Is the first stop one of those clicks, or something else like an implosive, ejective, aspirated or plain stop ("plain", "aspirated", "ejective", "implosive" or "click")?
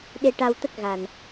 implosive